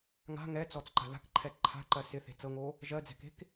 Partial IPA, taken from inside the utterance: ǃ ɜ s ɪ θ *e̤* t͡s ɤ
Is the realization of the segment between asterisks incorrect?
no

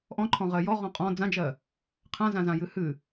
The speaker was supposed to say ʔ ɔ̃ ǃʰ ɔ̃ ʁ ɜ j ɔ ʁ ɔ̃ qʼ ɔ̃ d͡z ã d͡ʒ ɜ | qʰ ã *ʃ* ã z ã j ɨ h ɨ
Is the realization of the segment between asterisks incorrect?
yes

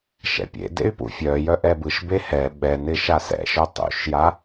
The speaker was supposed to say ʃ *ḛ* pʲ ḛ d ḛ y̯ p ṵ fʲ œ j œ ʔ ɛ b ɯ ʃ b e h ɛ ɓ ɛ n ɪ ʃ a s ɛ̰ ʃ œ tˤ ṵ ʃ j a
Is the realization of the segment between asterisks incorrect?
yes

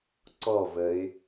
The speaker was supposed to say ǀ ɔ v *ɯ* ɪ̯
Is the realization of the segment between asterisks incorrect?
yes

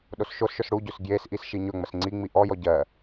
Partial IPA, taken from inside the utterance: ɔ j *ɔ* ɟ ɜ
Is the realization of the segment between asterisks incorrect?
no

